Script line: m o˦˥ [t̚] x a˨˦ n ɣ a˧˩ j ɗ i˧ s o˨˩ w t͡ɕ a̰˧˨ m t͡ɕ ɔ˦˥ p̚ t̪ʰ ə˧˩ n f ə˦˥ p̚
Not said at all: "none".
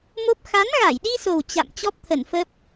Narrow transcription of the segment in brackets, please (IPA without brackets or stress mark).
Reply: p̚